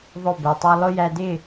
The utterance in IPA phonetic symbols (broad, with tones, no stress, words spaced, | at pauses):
ðˤʊ˦˨bɛ˨tˤu˦ lˠʊ˦jæ˧dɪ˦˨